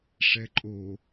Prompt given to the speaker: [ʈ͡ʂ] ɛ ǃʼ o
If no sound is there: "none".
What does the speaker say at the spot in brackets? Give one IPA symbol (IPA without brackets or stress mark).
ʂ